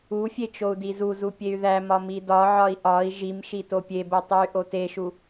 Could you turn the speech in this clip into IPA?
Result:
u fʲ e t͡ʃ o u̯ d i z u z u pʲ e y̯ ð æ m ɒ m i d ɒ ʕ ɒ i̯ ʔ ɒ i̯ ʒ i m ʃ i t o pʲ e b o tˤ u y̯ ʔ o t e ʃ u

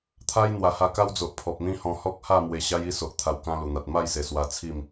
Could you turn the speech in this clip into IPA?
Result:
t̪ʰ a˦ j n̪ w a˨˩ h a˧ k a˦ w d͡z o˨ ʔ pʰ ɔ˨ p̚ n̪ ĩ˦ h ɔ̃˧ h ɔ˦ k̚ h a˥˧ m w e˧ ɕ a˦ j i˥˧ s o˨ ʔ t̪ʰ a˧ w k ã˦ l u˨˩ n̪ a˨ t̚ m a˥˧ j s e˨˩ s w a˧ t͡sʰ i˥˧ m

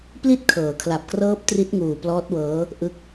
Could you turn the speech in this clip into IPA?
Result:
p l i˥˩ t̚ kʰ ɤː˩˦ kʰ l a˨˩ p̚ k r ɤː˦˥ p̚ t r i˦˥ t̚ ŋ uː˨˩ p l ɔː˦˥ t̚ w ɤː˦˥ | ʔ ɯ˦˥ k̚

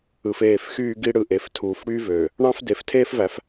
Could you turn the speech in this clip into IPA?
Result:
ɯ˨ f eː˦˨ f x yː˦ ɡ i˦ ɽ ɯ˨ ʔ e˨ f tʰ uː˨ f ɽ yː˦ v øː˨ | ɳ ɑ̃˦ f d e˨ f tʰ eː˦ f v æ˨˦ f

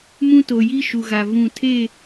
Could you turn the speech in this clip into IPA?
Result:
m ũ˦ t o˨ j i˦ ʃ u˨ ɣ a˨ v ũ˨ tʰ e˦˨

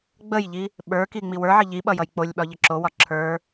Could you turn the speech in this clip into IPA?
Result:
ɡ͡b ə j ʎ i | ɓ ə˞ k i ŋ͡m i w ə˞ ʕ ə ʎ i ɓ ʌ j ʌ j k͡p o lʲ ɓ ɒ ʎ ə ǁ o w ɒ ǁʰ ə˞

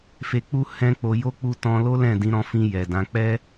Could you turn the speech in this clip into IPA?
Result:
f e˧ k͡p u˦ h ɛ̃˦ k͡p o˧ j o˦ k͡p u˧ t ɔ̃˧ l o˦ l ɛ̃˦˨ d ĩ˨˦ ɾ ɔ̃˧ f ĩ˧ j ɛ˨ d ã˨˦ k͡p ɛ˦

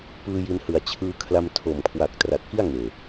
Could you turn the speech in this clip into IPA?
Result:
p ɯː˧ j i˧ n h ɯ˨˩ a̯ t͡ɕʰ ɯː˧ kʰ l a˧ m tʰ o˨˩ m kʰ w a˨˩ k̚ t r a˨˩ t̚ k i˥˩ a̯ ŋ eː˨˩

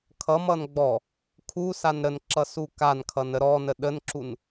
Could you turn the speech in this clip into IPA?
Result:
kʰ ʌ m ʌ n ɡ͡b ɔ | kʰ u s a n ɾ ə n ǁ ʌ s u k a n kʰ ʌ n ə ɾ ɔ n ə ɗ ə n ǁ u n

